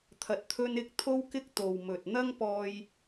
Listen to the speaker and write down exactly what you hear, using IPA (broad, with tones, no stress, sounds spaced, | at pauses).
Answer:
t̪ʰ ɐ˧ t̚ t̪ʰ ɵ˥ n ɪ˥ k̚ t̪ʰ o˥ w k ɪ˥ k̚ t̪ o˨ w m ɵ˨ t̚ n̪ ɐ˥ ŋ p ɔː˧ j